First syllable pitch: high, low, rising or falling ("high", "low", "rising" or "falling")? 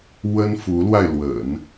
high